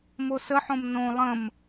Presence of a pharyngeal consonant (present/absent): present